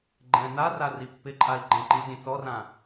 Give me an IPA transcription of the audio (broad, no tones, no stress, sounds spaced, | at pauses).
ɡ͡ǃ ɛ̃ n a r a r i pː ɪ ǃʼ a i̯ ɡ͡ǃ ɛ̃ ǃ i zʲ ẽ t͡s ɔ r ã